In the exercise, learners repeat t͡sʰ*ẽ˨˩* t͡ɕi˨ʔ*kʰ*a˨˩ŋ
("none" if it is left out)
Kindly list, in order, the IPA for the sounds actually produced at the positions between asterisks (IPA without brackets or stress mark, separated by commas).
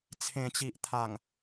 ẽ˨˩, t̪ʰ